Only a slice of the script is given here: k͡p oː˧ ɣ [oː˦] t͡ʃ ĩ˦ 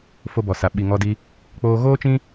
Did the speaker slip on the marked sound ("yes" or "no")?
no